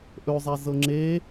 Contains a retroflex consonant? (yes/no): no